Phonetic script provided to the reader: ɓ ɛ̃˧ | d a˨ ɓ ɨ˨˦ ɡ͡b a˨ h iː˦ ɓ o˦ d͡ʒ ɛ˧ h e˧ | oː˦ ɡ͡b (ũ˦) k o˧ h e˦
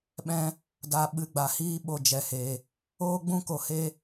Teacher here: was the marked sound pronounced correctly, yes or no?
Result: yes